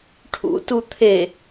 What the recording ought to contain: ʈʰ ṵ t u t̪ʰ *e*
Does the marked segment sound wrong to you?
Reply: no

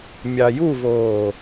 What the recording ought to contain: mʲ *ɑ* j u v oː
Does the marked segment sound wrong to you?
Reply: no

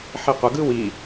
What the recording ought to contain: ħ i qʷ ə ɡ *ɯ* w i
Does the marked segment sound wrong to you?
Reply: no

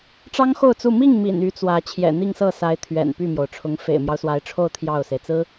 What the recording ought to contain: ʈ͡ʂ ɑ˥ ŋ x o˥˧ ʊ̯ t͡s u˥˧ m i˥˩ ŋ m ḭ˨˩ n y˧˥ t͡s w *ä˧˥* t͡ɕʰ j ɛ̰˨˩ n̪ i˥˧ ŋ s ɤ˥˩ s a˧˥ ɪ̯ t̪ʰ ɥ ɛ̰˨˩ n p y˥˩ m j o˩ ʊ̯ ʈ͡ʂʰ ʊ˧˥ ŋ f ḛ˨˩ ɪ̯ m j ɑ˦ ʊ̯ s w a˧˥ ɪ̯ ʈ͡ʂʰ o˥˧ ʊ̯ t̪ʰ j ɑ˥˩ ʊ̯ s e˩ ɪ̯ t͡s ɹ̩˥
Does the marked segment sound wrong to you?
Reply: no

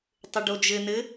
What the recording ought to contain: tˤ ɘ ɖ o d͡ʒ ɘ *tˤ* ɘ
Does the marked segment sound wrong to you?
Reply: yes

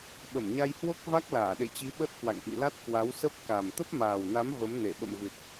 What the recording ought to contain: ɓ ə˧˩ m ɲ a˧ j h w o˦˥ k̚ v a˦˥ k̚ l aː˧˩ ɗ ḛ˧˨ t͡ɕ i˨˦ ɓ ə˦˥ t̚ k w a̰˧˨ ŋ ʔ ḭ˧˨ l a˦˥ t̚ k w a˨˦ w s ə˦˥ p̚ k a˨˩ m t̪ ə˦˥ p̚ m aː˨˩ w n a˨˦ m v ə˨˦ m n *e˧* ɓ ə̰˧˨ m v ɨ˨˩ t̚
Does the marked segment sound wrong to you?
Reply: yes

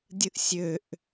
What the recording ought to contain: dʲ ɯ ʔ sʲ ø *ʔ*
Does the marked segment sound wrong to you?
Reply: no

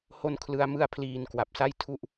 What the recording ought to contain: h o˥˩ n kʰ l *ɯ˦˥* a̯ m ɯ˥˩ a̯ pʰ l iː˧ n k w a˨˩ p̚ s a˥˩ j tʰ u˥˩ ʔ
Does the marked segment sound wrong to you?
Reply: no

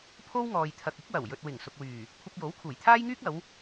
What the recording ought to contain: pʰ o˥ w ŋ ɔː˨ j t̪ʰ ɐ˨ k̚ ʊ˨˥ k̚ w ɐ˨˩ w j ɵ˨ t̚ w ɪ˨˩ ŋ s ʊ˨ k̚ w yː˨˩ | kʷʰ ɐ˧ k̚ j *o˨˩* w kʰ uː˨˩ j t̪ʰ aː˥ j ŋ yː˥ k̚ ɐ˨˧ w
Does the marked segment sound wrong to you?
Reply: yes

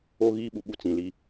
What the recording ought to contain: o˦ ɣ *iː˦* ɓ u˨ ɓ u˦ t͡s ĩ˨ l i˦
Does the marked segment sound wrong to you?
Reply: no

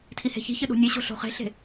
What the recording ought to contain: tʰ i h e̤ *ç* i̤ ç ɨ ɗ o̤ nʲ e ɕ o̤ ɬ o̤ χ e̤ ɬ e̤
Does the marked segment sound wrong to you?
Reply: no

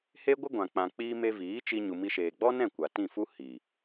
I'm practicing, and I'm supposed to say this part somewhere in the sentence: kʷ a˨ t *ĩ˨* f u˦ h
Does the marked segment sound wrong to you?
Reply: yes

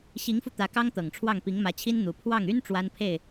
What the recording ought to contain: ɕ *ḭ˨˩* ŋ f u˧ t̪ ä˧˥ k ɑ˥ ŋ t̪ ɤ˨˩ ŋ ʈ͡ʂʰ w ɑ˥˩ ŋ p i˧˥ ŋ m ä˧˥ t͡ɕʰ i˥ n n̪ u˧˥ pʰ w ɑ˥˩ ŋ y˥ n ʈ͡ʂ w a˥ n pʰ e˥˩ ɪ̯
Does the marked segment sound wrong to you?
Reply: yes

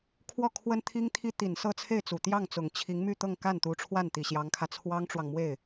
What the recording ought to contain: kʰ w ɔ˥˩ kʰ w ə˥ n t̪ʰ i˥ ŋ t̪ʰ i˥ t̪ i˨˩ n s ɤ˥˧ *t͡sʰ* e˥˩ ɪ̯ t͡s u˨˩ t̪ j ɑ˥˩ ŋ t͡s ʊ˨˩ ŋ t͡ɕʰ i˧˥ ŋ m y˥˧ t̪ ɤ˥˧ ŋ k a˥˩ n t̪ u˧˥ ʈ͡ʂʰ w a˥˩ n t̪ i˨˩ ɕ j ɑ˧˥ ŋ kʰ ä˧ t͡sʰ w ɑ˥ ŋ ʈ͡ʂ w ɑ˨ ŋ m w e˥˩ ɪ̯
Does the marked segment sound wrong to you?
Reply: no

